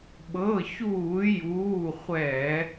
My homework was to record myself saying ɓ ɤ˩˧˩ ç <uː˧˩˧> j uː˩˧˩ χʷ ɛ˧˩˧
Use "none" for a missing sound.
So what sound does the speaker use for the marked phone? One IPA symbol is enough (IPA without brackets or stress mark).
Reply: uː˧˩˧